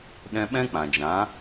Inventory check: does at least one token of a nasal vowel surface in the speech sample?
yes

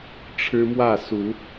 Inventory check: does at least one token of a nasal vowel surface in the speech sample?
no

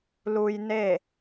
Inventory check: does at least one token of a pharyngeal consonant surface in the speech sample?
no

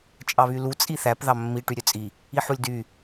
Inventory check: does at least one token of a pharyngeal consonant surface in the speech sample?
yes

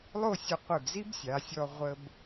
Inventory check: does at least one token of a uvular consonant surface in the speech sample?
yes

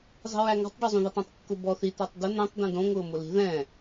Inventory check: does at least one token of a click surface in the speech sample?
no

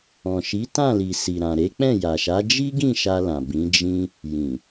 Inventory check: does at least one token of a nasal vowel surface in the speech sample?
yes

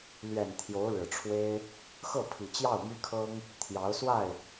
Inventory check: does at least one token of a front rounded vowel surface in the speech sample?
yes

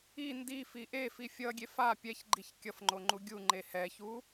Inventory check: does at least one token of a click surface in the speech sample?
yes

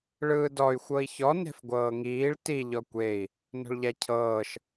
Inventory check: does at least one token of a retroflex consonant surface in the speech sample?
yes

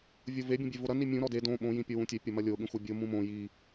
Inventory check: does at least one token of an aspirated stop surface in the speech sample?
no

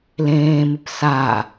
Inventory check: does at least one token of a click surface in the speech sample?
no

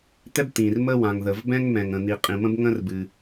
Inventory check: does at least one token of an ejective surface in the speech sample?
yes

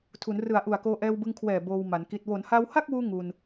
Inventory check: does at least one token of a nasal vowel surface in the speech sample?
no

